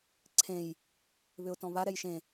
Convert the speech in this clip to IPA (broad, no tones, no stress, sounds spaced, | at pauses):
ǀʰ ẽ j | β ʏ ʊ̯ t ɔ̃ β a ɾ ɛ j ʃ ẽ